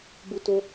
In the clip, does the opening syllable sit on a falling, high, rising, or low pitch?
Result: high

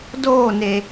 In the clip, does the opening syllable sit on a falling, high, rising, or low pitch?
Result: falling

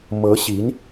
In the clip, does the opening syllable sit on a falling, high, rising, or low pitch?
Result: rising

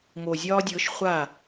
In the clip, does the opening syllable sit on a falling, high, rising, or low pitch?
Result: low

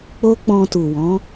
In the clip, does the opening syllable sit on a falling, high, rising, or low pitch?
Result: high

